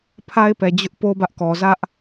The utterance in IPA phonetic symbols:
pʰa˦ɪ̯pɛ˨ d͡ʑʊ˦ʔpo˦ bä˦ʔkɔ˨ zä˦ʔ

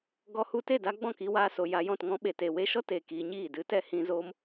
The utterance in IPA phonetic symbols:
ɡɔ˧hu˧te˦˨ da˧ɡ͡bɔ̃˦˨ki˧waː˧ so˨ ja˧jɔ̃˦˨t ŋɔ̃˧ɓe˨te˨ we˧ʃɔ˦teː˨ kiː˧ɲiː˦˨ dɨ˨˦tɛ˧ hĩ˧ zoː˧m

